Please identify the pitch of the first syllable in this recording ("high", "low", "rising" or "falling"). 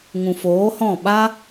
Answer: low